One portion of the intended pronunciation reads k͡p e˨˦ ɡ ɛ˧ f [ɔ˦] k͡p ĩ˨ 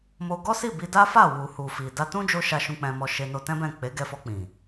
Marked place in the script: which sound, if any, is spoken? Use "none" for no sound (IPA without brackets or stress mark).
ɔ˧